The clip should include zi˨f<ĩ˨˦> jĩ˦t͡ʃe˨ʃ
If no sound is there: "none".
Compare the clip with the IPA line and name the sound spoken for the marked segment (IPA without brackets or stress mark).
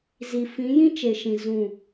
ĩ˨˦